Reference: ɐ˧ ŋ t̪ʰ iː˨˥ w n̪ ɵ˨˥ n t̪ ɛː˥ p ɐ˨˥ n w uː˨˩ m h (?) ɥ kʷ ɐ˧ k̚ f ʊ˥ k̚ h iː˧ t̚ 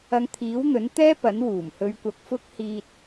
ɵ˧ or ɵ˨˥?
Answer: ɵ˧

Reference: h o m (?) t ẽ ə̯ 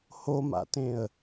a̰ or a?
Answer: a̰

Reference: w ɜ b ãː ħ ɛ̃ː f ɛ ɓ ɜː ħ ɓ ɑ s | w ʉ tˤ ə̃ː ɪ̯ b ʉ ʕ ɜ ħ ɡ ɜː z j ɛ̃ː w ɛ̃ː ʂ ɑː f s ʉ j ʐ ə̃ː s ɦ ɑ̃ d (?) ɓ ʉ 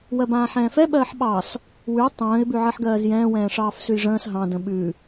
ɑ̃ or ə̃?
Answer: ə̃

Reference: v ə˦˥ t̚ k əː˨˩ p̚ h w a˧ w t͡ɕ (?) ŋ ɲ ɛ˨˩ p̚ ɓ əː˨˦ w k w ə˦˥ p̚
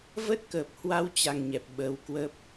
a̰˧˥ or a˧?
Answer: a˧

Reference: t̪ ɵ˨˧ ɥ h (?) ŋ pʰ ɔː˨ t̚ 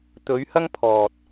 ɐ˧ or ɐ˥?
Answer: ɐ˧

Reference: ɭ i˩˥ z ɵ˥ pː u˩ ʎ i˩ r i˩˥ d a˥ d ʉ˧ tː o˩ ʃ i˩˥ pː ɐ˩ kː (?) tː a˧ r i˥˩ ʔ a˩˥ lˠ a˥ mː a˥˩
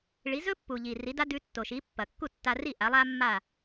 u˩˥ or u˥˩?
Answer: u˥˩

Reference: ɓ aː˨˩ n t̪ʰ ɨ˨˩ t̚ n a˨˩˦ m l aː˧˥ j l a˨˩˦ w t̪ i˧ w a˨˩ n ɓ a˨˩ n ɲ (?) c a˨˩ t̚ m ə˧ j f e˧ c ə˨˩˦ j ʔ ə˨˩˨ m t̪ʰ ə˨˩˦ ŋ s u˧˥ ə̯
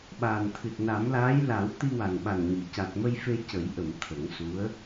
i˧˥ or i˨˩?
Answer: i˨˩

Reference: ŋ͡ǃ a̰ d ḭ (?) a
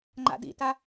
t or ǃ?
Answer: t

